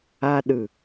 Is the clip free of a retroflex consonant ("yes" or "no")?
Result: yes